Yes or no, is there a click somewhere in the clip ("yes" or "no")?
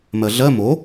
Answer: no